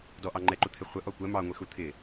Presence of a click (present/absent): present